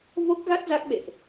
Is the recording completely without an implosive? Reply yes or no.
no